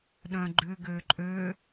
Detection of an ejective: present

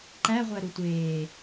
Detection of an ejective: absent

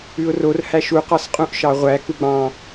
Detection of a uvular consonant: present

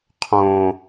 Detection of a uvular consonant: present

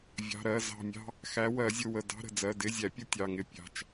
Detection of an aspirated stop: absent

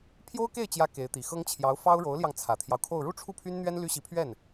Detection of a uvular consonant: absent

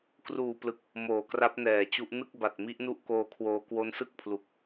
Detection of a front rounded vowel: absent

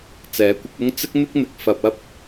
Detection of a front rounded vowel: absent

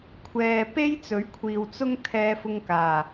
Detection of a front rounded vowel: absent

